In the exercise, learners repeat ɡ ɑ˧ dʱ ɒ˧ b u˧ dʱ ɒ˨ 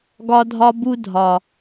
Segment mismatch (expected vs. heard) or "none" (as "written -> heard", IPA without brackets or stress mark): ɑ˧ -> ɒ˧